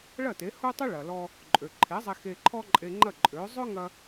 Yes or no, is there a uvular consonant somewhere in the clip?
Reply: no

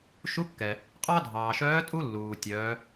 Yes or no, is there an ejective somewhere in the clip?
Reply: yes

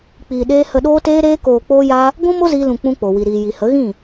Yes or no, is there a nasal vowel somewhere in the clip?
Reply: yes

